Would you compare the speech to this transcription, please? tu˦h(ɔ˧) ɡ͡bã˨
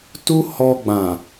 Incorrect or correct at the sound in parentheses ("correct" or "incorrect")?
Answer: correct